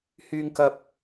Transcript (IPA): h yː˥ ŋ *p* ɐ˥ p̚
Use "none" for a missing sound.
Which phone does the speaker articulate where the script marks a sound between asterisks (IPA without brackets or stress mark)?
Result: k